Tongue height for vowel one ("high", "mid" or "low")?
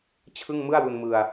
high